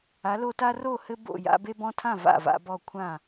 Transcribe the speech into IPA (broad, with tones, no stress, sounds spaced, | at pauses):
a˨˥ l o˦ t a˦ r o˥˨ h ɘ˦ b o̰˥˨ j a̰˦ b e˦ b ɔ̃˦ tʰ ã˥˨ v a̰˥˨ v a̰˦ b ɔ˥˨ kʷʰ ã˥˨